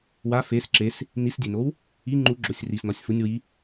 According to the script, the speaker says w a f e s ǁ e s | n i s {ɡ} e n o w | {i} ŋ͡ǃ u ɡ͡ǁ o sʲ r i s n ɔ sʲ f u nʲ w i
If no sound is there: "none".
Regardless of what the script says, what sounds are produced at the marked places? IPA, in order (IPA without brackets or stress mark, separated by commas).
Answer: dʲ, i